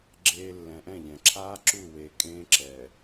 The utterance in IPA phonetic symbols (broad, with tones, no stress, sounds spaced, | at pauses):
ɡ͡ǁ eː˨ lː ɛ̃˨ ʔ ɛ̃˦˨ ʎ ɛ̃˨ ǁʰ aː˦ ǁ u˦˨ w eː˨ kʼ ẽː˦ ǁ ɛː˨